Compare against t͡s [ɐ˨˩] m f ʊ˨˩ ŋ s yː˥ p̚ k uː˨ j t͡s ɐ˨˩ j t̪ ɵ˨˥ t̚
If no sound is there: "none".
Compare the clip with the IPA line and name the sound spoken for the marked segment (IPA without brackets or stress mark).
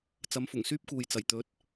ɐ˨˥